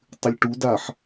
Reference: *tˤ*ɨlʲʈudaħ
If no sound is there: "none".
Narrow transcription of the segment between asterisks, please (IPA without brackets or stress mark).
tˤ